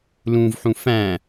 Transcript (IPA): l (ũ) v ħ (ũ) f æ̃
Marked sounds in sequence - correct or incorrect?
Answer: correct, correct

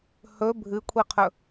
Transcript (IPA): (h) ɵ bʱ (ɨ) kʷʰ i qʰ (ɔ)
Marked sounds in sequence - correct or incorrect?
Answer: correct, correct, incorrect

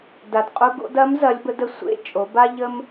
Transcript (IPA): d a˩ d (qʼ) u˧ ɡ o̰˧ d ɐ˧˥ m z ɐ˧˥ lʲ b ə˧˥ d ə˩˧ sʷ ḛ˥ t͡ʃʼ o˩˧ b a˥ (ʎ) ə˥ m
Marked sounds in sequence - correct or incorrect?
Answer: correct, correct

